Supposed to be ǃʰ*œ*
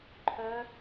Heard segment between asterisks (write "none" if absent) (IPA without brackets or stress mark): œ